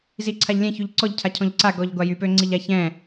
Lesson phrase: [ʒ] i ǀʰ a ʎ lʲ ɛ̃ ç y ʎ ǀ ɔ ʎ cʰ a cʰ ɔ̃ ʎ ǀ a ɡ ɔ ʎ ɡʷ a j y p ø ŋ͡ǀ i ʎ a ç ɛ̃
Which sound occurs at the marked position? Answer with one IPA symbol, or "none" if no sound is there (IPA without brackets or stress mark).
z